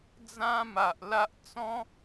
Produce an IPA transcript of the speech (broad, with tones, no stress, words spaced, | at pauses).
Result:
d͡zã˦ma˨ʔ la˦ʔ t͡sɔ̃˦